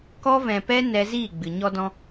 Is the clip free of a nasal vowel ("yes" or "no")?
no